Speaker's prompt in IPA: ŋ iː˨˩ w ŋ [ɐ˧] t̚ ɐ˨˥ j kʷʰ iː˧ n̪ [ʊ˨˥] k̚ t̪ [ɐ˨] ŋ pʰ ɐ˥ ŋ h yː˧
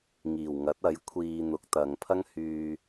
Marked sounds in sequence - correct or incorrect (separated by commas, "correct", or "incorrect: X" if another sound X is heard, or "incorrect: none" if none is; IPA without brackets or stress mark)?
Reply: incorrect: ɐ˨˥, correct, incorrect: ɐ˨˧